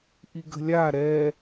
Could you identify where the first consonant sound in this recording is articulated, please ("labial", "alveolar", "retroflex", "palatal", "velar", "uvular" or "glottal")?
glottal